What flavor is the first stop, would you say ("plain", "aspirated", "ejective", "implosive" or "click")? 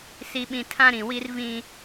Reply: implosive